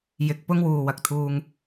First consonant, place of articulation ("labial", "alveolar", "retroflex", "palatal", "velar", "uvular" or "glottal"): palatal